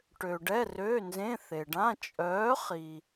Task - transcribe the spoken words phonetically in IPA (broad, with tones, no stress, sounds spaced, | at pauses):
ʈ ø˨ ɖ ɛ˧˥˧ r øː˧˥˧ n z ẽ˧˥˧ θ e˨ ɖ ã˧˥˧ t͡ʃʼ œː˨˥ χ i˨